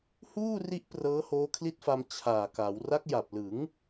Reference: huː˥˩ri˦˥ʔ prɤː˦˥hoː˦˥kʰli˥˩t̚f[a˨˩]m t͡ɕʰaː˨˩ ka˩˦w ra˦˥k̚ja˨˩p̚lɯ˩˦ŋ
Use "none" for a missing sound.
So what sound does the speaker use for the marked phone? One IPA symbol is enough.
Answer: a˧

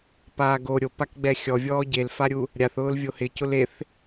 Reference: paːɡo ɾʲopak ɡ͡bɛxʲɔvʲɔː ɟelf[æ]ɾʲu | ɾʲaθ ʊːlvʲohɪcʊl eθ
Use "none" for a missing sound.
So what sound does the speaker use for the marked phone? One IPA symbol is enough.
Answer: a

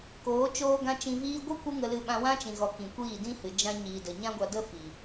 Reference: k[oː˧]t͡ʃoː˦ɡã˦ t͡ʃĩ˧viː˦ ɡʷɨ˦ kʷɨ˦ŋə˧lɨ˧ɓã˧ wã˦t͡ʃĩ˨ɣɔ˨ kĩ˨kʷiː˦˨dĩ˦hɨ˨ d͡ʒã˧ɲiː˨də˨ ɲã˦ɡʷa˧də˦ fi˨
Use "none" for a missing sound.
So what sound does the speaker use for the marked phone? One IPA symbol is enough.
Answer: oː˨˦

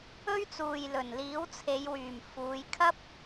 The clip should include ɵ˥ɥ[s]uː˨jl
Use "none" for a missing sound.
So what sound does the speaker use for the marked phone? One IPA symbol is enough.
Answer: t͡s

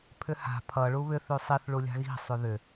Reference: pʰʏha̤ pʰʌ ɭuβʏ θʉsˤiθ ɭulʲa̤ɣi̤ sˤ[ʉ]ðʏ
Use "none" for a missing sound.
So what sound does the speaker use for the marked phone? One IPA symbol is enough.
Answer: ʉ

